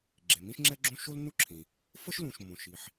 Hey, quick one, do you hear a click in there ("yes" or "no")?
yes